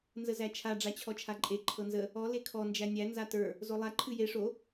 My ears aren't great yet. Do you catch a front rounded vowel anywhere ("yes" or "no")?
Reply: no